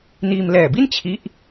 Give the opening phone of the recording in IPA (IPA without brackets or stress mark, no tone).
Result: n